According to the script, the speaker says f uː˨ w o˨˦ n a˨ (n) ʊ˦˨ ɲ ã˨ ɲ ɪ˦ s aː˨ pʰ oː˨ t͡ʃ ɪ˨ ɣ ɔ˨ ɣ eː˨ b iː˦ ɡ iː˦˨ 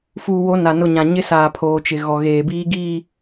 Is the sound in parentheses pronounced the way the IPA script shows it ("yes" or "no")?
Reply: yes